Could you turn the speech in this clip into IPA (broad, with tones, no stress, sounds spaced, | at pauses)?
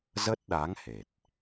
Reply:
z ə˦˥ t̚ ɗ a˨˦ ŋ h e˨˩ t̚